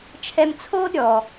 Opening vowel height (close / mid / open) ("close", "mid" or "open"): mid